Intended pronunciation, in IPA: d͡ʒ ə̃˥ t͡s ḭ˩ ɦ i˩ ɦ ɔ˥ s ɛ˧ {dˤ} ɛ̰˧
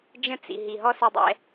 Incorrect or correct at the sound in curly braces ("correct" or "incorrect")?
correct